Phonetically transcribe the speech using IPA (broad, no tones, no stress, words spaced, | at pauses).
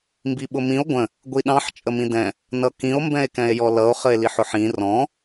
mbiɓʊmĩo̯ ɡʷə̃ | ɡʷiɗɑ̃ħ t͡ʃʼəmĩdɛ̃ | nʌkĩo̯ mbɛ̃e̯kɛ̃e̯jɔlʌo̯ χəe̯liħʊħĩ rɔ̃